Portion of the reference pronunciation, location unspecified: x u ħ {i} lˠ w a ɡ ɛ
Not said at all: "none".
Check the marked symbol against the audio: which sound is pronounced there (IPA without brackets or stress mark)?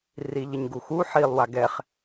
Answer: i